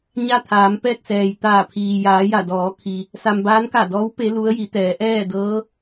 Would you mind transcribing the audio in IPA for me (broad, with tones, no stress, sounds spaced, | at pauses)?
ɲ a˥˨ t̪ʰ aː˩˧ m p ɛː˥˨ k̚ s ɛː˩ j t̪ aː˧˩ pʰ iː˩ j aː˩˧ j a˧˩ d ɔː˩˧ kʰ i˩ | s a˧ m b aː˧˥ n k a˧˩ d ɔː˧˥ w p e˧˥ l u˧˥ ə̯ j i˩˧ t̪ ɛː˩˧ ʔ ɛː˥˨ d ɤː˧˥